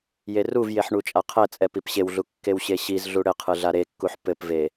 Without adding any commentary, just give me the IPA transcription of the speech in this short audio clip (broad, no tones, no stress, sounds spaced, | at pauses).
j e r u v j e ħ ɳ u t͡ʃʼ a qʰ ɛ t͡sʼ ɛ p i p ɕ e w ɮ u kː e w ɕ e ɕ i z ɮ u ɽ ɘ qʰ ɨ ɮ a ɾ e kː u ħ p ɘ p v e